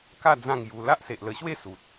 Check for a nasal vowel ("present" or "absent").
present